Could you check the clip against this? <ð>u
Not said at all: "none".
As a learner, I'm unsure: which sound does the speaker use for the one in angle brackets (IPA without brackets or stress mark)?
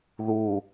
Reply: ð